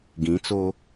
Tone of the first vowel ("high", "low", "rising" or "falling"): rising